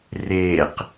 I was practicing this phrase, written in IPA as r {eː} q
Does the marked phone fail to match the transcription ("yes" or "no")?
no